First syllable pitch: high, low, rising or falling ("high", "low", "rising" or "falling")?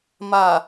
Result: low